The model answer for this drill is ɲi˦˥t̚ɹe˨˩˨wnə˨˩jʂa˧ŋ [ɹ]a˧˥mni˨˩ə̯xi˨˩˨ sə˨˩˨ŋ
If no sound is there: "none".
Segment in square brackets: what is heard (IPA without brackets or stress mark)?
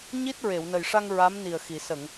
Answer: ɹ